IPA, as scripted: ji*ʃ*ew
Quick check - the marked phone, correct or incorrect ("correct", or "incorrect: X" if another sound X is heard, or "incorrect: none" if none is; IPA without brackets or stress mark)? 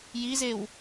incorrect: z